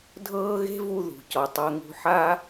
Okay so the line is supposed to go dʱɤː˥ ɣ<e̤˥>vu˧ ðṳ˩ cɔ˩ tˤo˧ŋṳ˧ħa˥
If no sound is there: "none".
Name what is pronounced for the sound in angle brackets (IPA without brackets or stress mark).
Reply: e̤˥